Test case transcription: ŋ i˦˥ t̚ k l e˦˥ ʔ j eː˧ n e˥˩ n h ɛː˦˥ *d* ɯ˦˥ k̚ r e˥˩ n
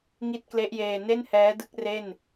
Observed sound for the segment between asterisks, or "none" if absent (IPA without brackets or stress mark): d